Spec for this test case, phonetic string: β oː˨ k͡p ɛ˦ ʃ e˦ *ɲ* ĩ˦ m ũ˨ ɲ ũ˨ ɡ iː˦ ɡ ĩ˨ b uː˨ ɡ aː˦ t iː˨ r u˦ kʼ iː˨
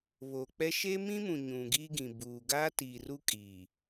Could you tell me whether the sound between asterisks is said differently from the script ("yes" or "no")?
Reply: yes